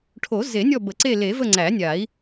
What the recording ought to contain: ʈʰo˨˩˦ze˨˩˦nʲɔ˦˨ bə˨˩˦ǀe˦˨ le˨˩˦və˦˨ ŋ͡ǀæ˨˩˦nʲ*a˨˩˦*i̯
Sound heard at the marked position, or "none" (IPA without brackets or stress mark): a˨˩˦